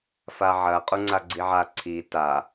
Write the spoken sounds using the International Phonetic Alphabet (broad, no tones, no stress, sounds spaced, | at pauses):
f a ʕ ɐ qʼ u ŋ͡ǀ a ɡ͡ǀ i ʕ a ǀʰ i t a